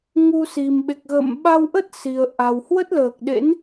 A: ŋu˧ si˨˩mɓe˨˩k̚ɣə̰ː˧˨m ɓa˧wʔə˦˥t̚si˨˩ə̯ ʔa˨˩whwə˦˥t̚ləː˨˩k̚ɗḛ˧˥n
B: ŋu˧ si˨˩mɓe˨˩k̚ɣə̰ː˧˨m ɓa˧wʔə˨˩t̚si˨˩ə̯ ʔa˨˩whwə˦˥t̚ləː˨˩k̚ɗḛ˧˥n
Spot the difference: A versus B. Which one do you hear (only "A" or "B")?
A